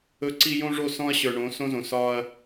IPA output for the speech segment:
ɵ˦ ǀ i˦ j õ˦ ʐ o˦˨ s ɔ̃˦ ɐ̯ ɕ ə˞˨ ɳ õ˨˦ s õ˦ z õ˨ s ɒ˦ ɐ̯

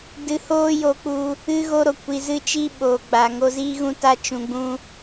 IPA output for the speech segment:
d ɨ˧ h oː˦ j o˧ k͡p u˧ | ɨ˧ ɣ o˧ ɾ o˨ kʷ i˨ z ɨ˧ t͡ʃ i˦ ɓ oː˨ ɡ͡b a˨ ŋ o˧ z iː˦ ɣ ũ˦ t a˦ t͡ʃ ũ˧ ɡ͡b ũ˦

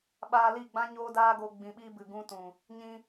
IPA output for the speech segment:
ɓ aː˧ l i˦˨ ɡ͡b ã˦ ɲ oː˦ d aː˦ ɡ o˧ ɡ͡b ĩ˧ ɓ iː˦ b ɨ˨ ɡ ũ˦ t ũ˨ | ɲ ĩ˧

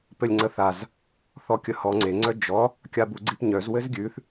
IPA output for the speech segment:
p ɘ lʲ ŋ͡ǀ ə θ a z | θ ɔ kʲ ə h ɔ ŋ͡ǀ e ŋ͡ǀ œ d͡ʒ ɔ | kʲ a b u ɡ͡ǀ i p ɲ œ z w ɘ z ɡʲ ʉ θ

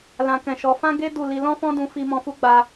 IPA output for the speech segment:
l ã˨ k ɛ̃˨ ʃ ɔ˨˦ f ã˦ ɡ e˦ d u˦˨ l i˧ l ɔ̃˦ f ɔ̃˦ d ũ˧ f i˧ m ɔ̃˧ f u˦ ɡ͡b a˧

